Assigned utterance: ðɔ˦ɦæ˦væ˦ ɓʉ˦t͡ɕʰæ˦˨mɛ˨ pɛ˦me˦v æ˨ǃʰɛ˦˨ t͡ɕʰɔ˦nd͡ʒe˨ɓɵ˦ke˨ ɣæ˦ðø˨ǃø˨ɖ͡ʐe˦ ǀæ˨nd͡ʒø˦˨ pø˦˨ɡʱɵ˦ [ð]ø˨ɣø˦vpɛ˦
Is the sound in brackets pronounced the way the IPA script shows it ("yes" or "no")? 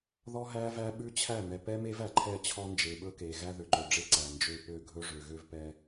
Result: no